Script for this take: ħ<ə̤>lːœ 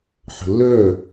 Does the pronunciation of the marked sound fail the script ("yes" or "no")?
no